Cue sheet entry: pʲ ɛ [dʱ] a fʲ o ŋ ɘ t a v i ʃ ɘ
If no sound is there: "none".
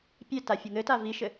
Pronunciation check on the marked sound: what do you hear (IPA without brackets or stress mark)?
t